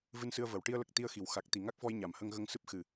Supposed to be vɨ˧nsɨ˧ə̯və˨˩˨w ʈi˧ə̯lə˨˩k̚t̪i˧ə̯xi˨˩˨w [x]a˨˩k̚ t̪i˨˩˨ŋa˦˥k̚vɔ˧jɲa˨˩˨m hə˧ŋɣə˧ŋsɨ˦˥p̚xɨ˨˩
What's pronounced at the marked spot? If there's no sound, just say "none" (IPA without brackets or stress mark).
x